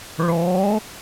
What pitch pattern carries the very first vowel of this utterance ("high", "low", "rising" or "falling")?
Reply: rising